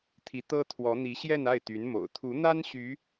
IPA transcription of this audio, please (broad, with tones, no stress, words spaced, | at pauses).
t̪ʰi˧˥t̪ɤ˥t̪ʰwɔ˧˥n̪i˧˥ ɕjɛ˥˧na˥˩ɪ̯ t̪y˧˥nmo̰˨˩ʊ̯ t̪ʰu˧˥n̪a˥n ɕy˧˥